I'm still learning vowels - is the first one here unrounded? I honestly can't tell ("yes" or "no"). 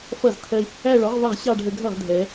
yes